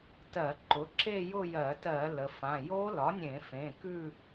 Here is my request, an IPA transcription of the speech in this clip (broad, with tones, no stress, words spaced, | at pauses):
tɜ˧˩˧ǃʊ˩˥ ǁe˥˧jʊ˥˧jɜ˧˩˧tɜ˧˩˧ lə˩˧fã˩˧˩ jo˦˥lɒ˩˥nʲẽ˧˩˧ fẽ˩˧˩kʉ˥˧